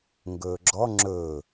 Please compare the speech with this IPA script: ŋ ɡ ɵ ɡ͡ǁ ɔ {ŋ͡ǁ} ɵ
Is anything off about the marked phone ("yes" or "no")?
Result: no